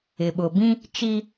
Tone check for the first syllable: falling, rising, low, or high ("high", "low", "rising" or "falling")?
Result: low